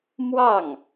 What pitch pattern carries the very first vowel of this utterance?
falling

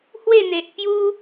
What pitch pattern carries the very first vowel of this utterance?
falling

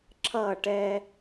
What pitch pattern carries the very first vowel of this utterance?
falling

